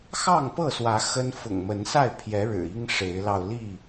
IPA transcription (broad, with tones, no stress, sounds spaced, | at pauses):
x ɑ˥˨ ŋ p ɤ˥˨ s w ä˨˦ x ə˦ n f ʊ̰˨˩ ŋ m ə˨˦ n s a˥˨ ɪ̯ pʰ j ɛ˨˦ ɻ ɻ̩˨˩ i˦ ŋ ʂ e˨˦ ɪ̯ l ɑ˧ ʊ̯ l i˥˨